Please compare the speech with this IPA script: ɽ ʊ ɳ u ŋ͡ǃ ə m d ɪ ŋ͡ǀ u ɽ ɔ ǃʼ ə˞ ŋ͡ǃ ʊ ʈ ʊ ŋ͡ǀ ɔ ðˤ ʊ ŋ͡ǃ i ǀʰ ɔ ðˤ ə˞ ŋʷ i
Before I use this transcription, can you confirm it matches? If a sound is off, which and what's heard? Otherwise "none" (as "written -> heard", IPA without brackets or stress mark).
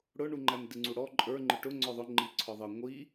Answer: ə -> æ